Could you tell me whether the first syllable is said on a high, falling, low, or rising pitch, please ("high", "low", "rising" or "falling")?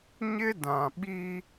high